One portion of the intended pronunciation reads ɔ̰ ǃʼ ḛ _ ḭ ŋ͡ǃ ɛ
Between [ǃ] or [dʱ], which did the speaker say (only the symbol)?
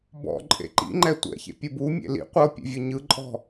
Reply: ǃ